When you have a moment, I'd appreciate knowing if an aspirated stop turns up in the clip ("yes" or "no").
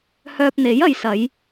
no